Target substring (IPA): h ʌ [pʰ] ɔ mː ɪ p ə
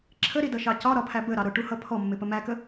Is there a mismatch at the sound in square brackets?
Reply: no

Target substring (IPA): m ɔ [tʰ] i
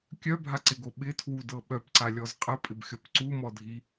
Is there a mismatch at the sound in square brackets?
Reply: yes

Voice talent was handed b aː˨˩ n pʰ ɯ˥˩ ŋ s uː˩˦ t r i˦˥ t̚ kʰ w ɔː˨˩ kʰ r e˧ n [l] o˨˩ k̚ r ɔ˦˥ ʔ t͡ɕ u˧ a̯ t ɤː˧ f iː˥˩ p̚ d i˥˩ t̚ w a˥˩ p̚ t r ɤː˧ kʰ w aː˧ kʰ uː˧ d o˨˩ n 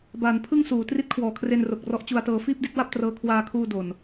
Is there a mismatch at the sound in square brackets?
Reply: yes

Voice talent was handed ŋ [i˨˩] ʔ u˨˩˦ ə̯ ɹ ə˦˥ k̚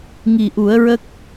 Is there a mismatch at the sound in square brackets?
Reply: no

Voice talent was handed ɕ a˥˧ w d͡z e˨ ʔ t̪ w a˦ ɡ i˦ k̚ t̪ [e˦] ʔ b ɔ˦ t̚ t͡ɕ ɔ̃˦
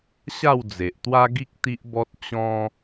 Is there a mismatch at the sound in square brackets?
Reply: yes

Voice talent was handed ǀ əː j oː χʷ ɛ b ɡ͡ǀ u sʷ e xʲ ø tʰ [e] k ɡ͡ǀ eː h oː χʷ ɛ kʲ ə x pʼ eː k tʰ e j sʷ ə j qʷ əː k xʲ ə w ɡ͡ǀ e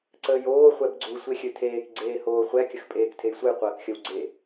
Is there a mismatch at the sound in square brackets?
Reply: yes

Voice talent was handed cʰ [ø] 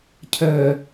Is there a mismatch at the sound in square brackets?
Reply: yes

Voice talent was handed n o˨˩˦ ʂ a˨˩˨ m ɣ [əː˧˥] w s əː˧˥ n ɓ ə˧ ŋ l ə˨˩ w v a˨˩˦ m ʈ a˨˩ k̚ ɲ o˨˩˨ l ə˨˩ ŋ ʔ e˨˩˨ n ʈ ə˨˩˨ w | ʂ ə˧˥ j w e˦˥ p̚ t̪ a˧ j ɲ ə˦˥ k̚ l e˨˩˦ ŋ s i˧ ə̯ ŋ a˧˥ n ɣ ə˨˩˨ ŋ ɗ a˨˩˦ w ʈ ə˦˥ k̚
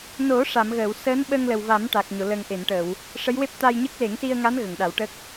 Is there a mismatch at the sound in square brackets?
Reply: yes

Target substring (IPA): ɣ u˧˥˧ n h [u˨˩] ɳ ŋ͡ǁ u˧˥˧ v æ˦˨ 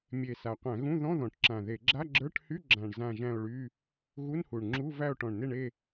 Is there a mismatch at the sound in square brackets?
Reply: no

